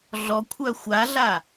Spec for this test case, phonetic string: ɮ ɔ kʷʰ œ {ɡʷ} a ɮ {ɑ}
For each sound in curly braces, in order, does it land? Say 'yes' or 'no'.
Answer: no, no

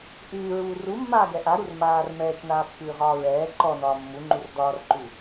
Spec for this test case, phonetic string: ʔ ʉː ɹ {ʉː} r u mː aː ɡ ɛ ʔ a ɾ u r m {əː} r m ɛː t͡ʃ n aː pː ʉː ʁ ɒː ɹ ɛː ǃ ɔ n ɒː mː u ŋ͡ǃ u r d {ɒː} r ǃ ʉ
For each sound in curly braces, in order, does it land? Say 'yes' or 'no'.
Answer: no, no, yes

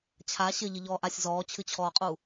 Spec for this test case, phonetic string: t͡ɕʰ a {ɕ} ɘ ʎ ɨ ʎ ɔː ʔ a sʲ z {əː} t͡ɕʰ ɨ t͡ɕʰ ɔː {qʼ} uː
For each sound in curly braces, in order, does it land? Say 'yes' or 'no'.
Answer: yes, no, yes

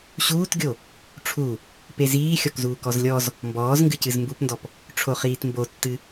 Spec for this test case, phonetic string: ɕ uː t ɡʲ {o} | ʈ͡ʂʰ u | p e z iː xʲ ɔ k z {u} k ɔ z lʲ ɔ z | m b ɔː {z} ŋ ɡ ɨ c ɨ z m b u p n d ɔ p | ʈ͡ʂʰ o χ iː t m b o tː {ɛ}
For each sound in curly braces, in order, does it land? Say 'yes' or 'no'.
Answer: yes, no, yes, no

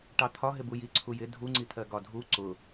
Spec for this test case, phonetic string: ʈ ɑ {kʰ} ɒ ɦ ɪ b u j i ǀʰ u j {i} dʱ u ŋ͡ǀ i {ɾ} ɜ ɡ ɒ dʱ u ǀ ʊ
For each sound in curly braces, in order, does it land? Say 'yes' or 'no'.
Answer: no, no, no

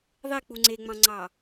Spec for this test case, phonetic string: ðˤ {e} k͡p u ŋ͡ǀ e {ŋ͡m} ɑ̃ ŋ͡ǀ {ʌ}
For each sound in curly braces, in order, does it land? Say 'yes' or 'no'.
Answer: yes, yes, no

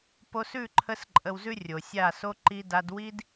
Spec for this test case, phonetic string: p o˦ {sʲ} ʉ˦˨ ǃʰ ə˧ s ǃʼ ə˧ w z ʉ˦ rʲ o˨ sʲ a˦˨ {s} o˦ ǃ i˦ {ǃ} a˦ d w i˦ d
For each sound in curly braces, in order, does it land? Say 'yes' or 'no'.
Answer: no, yes, no

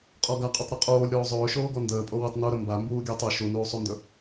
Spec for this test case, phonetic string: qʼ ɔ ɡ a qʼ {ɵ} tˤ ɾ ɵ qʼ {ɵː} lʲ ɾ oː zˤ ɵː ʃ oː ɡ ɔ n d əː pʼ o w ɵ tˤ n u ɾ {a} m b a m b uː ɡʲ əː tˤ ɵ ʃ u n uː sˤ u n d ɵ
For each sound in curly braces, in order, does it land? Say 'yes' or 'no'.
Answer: yes, no, no

